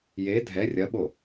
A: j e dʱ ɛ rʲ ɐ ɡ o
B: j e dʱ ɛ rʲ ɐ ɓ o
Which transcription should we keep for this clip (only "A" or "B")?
B